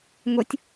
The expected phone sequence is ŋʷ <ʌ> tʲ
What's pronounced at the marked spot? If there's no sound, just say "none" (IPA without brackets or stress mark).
ʌ